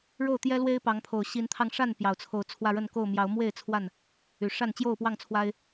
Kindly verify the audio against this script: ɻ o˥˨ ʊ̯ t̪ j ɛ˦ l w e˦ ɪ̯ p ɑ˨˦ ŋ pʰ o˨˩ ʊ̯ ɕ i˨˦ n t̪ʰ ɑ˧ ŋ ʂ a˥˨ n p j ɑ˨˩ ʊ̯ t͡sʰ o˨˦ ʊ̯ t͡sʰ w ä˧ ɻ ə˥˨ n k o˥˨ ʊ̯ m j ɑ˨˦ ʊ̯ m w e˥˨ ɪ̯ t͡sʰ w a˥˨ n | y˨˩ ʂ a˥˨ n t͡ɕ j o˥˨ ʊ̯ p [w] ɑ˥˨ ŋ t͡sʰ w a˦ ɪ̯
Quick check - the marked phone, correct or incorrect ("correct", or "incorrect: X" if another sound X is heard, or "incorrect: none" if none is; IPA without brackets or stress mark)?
correct